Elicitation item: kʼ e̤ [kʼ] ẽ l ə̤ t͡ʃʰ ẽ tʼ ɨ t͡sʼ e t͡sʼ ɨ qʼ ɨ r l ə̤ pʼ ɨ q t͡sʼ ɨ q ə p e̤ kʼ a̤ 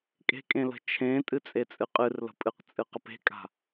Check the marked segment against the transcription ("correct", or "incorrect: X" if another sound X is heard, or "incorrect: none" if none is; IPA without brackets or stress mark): correct